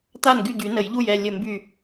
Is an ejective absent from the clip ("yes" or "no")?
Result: yes